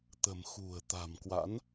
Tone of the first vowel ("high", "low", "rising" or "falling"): low